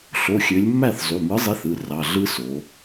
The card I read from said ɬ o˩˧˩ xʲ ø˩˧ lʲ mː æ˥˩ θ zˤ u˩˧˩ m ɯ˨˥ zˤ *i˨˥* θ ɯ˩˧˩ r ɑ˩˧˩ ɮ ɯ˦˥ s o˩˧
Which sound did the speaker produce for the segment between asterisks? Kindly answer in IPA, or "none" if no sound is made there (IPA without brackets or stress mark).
i˨˥